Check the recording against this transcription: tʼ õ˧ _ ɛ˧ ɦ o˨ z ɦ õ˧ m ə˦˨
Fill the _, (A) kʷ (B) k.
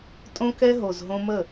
B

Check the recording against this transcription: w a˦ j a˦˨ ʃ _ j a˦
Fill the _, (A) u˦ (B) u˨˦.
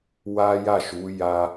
B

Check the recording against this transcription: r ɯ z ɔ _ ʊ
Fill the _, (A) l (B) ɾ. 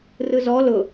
A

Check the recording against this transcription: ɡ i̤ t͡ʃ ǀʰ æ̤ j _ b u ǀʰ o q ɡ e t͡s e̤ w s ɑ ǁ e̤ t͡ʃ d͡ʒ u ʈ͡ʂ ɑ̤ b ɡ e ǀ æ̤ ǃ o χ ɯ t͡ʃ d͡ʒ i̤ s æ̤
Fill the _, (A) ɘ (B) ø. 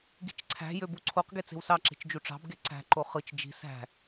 B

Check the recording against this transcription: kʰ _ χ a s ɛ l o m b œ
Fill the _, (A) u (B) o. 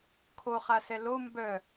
B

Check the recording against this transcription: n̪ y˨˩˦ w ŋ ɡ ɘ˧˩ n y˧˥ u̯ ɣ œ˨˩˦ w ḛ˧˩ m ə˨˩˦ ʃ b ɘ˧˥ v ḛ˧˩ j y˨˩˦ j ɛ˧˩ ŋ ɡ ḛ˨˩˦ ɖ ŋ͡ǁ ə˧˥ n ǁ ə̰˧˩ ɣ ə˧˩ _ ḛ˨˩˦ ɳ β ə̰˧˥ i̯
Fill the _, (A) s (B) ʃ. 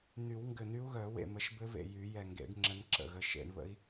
B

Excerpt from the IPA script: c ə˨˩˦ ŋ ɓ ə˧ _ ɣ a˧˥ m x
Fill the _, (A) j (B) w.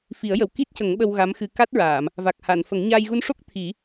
B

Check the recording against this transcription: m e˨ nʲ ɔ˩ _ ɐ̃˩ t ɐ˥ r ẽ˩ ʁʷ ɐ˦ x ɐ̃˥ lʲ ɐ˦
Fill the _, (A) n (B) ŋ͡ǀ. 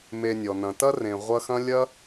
A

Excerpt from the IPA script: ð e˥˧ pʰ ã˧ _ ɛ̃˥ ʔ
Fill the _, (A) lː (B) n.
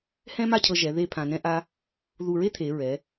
B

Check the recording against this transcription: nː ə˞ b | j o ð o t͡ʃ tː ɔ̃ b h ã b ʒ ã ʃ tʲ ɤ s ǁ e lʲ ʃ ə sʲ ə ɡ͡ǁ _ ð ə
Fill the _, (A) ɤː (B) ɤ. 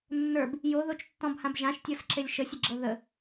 B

